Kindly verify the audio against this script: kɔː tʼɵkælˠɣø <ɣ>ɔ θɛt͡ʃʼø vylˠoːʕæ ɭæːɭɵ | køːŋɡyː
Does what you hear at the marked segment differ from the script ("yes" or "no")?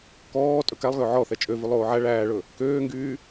yes